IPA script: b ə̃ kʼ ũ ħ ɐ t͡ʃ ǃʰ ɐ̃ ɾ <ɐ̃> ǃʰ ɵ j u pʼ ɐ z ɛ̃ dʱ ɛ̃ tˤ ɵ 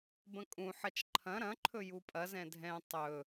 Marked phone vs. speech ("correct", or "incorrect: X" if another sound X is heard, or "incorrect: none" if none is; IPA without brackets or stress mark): correct